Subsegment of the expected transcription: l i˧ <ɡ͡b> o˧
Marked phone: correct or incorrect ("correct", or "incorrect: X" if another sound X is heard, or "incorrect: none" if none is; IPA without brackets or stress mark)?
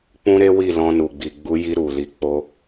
incorrect: k͡p